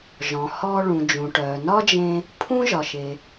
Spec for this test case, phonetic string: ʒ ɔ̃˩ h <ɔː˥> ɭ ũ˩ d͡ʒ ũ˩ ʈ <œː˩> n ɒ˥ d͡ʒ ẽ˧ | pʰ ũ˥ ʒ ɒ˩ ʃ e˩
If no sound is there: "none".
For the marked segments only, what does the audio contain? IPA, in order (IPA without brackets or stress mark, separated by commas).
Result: ɔː˧, œː˩